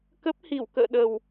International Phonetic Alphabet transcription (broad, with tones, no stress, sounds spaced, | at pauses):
k ə˦˥ p̚ h i˧˩ w k ə̰ː˧˨ ɗ ə˨˩ w